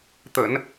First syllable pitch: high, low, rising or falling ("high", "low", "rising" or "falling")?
low